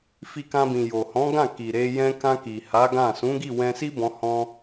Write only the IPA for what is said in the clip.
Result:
f i˧ k ã˧ b ĩ˨ j o˨ h ɔ̃˨˦ ɡ ã˦˨ k i˨ ɾ e˧ j ɛ̃˧ k ã˧ k i˨ h a˨˦ ɡ ã˦˨ s ũ˨˦ ɡ i˦˨ w ɛ̃˧ s i˦ b ɔ̃˧ h ɔ̃˧

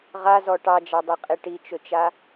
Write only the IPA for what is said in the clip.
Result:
ʁ a z ɔ ʈ ɑ d͡ʒ ɑ dˤ i qʼ e ʈ i t͡ʃ ɵ t͡ʃ a

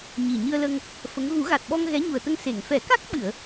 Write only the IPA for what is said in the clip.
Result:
ɲ i˨˩ ɲ ɨ˧ ə̯ l ə˧ ŋ | f ə˧˥ ŋ ɣ u˨˩˦ ɣ a˨˩ t̚ ɓ ɔ˧ ŋ ɣ ɛ˧˥ ɲ u˨˩ ə̯ t̪ ə˧ ŋ s e˨˩˨ ŋ f ɛ˨˩˦ k a˦˥ k̚ ɓ ɨ˨˩˨ ə̯

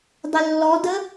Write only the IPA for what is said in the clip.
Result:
dˤ ɪ lː ɔ d ə

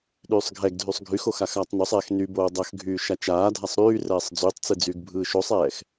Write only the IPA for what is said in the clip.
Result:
ɗ yː sˤ ɡʱ ɛ ɡ dʱ y sˤ ɡʱ y x o x a x aː tˤ n o sˤ ɛː x n y b oː dˤ ɐ x ɡʱ yː ʃ a t͡ʃ aː dʱ a sˤ ɾ yː r ɛː sˤ d͡z yː tˤ t͡s ɯ d͡z yː ɡ bʱ ɯː ʃ o sˤ ɛː x

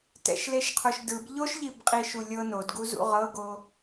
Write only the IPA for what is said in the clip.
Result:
t ɛ̰ ʃ l e ʃ qʰ o ʃ d ɯ b ʎ o ʃ ʎ i b qʼ i ʃ u lʲ ɤ n o d ɡ u z ṵ ʁ ɤ ɡ o

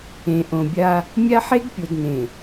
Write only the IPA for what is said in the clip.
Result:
ẽ˨ ʔ õ˨ bʲ a˦ | mʲ a˦ ħ e˦ ɡ pʲ o˨ d n ẽ˨

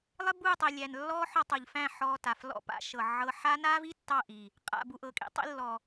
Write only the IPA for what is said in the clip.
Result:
lˠ ɪ˦ b uː˦˨ tˤ i˨ lʲ æ˨ n lː ɔː˦ ħ ɔ˧ tˤ o˨ ʎ f æ̃˦˨ ħ ɔː˧ t a˨ f l ɔ̰˧ p a̰˦ ʃ ɤ˨ ʕ ɤ˧ ħ a˦ n aː˦ v i˦ tː ɑ˦˨ ʔ iː˨ | qʼ a̰˨ b u˨ ʔ ɤ˨ kʼ ḭ˦ tˤ ḭ˧ lː ɔ˨

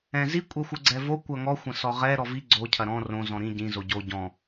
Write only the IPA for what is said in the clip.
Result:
ɛ̃ z i kʷʼ ɛ xʷ ɨ ɡ͡ǀ ɛ v o kʷ ɐ ŋ ɔ xʷ ɐ̃ s ɔ ʁ ɛ ɾ ɔ v i ɡ͡ǀ o cʰ ɐ ɾ ɔ̃ r õ z ɔ̃ ɾ ĩ ɟ ĩ z o ɟ o ɟ ɔ̃

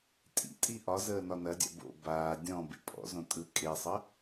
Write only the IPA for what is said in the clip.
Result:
tʼ ḭ tʼ i ʔ ɒ z əː n ɒ n ɐ dʲ a̰ b o̰ b aː dʲ ɔ̃ b ḛ pʼ ɔ̰ z õ tʼ ɯ kʼ e sˤ ə

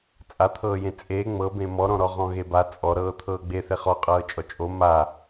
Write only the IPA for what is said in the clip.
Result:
t͡sʼ a t̪ʰ ɤː j ẽ t͡sʼ eː ŋ͡m ɤ b ẽ m ɔ ɾ ɔ̃ ɾ ɔ ʁ ɔ̃ ɣ e b a t͡sʼ ɔ ɾ ɤː t̪ʰ ɤː ɡ͡b e θ e χ ɔ qʼ ɤː t͡ʃʼ ɔ t͡ʃʼ o m a

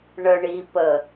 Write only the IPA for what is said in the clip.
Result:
ɳ ə ɳ i p ə

